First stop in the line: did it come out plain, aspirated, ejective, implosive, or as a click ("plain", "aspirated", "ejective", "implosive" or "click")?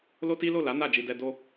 plain